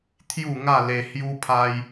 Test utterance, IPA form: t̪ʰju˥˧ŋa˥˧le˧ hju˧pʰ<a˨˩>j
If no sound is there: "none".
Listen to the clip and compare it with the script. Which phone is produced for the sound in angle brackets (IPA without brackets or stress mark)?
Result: a˧